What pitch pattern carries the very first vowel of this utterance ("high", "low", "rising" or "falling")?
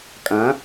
rising